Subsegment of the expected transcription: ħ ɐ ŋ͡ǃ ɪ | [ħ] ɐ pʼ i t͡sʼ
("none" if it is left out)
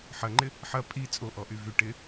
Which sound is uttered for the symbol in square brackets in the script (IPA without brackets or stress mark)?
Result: ħ